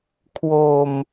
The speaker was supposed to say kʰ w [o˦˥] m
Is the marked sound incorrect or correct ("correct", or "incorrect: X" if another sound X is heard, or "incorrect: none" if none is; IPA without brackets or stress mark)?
incorrect: o˧